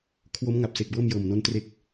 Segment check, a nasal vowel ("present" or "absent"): absent